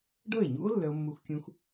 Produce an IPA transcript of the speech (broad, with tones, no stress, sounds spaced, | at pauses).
ɖ ɤ˥˩ e̯ ɲ ṵ˦˥ o̯ lː œ˦˥ o̯ mː u˦˥ x kʲ ũ˦˥ x